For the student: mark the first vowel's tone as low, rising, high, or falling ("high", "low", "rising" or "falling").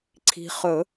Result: low